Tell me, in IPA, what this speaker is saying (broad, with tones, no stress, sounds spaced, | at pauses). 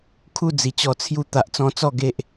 kʰ u˥˧ d͡z i˨˩ t͡ɕ ɔ˧ t͡sʰ j u˥˧ t̪ a˨ ʔ t͡s ɔ̃˧ t͡s ɔ˥˧ ɡ e˦ ʔ